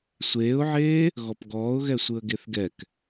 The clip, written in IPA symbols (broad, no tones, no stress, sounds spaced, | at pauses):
sʷ eː ʊ̯ ʕ eː | ɣ ɔ p ɡ ɔː ʊ̯ ɣ ɛ sʷ ɯ ə̯ ɡ e θ ɡ ɛ k